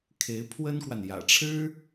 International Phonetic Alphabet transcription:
kʰe˧˥ɪ̯pʰwə˥nkwa˨n jä̰˨˩ʈ͡ʂʰɻ̩˥

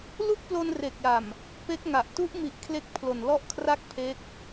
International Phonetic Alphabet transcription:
lu˥˩k̚plo˧n re˨˩k̚ja˨˩m | pe˦˥k̚ŋa˨˩ʔ tu˦˥ʔmi˨˩ʔ kʰle˦˥k̚ pʰlo˨˩nlɔ˥˩ʔkʰra˥˩k̚ pʰe˦˥k̚

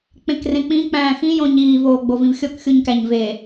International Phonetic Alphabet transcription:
k͡pẽkrẽk͡pĩ k͡pæ̃ːxĩ jõɲiː voːɡ͡bovĩvxʲok xʲuɲkæɲve

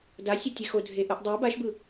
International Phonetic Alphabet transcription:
dasʲøtʲe xodʱe ʔɯʔdˤø baʃbɯ

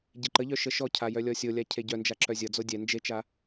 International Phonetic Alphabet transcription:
ɟeǃəʎœ ʃəʃɔcʰa jœlʲɔsʲolʲa cʰeɟœnd͡ʒa ǁœzʲʌd͡zo dʲɛ nd͡ʒet͡ʃa

